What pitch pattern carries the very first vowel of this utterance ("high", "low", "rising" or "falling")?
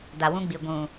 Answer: low